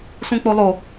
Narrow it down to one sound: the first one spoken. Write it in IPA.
sʷ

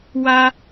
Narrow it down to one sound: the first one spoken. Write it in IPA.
w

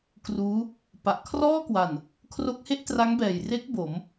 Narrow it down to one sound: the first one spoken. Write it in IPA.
k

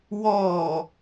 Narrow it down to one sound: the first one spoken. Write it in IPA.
w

